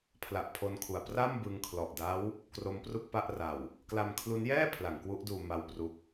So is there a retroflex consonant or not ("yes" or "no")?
no